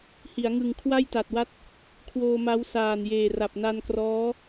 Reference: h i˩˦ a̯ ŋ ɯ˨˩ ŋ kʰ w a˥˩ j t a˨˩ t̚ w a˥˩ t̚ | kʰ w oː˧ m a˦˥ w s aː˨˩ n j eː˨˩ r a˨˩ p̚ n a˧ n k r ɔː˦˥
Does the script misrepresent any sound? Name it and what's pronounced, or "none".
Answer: none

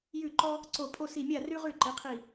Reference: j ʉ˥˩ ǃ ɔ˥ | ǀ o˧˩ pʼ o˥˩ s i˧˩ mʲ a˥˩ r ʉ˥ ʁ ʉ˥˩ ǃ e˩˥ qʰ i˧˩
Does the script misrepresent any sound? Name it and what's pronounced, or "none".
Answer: none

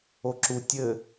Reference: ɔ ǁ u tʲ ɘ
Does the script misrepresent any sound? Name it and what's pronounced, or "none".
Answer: ɔ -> o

